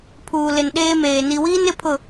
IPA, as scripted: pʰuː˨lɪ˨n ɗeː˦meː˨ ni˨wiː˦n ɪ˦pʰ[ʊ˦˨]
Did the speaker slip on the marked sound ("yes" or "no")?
no